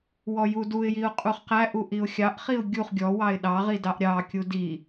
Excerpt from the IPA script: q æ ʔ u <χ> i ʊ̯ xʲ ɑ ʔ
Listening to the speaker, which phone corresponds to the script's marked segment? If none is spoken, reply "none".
ʔ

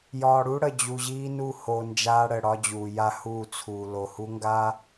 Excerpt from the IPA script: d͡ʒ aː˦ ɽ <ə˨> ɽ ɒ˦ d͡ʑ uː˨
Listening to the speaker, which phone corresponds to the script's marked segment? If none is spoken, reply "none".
ə˨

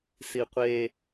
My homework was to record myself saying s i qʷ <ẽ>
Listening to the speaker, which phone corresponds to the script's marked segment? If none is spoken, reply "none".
e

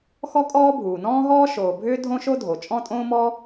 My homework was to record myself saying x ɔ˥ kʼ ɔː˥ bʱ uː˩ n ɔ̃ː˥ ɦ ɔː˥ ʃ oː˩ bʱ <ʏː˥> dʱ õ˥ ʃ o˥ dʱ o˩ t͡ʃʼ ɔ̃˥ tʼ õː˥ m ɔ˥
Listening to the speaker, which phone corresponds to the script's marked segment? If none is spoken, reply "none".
ʏː˥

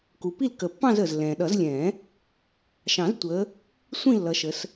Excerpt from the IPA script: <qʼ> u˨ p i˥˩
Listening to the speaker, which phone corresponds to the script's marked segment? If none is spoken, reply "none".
k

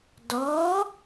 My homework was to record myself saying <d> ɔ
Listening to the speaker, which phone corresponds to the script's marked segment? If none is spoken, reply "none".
d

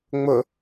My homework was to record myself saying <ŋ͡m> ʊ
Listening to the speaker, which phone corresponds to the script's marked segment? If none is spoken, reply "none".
ŋ͡m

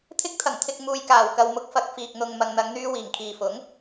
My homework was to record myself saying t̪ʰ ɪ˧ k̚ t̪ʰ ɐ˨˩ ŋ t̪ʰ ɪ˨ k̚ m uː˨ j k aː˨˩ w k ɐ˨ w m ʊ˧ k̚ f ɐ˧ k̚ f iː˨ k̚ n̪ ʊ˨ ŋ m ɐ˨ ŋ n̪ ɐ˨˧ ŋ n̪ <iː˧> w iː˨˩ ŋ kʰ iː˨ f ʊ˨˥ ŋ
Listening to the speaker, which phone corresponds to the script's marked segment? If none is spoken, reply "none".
yː˧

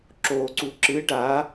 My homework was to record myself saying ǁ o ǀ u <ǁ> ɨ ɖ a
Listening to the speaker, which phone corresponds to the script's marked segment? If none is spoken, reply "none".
ǁ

